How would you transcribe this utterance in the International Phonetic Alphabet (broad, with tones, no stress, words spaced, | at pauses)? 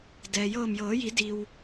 dɛː˩jɤː˧˩mjɤː˩˧ji˩˧ di˧w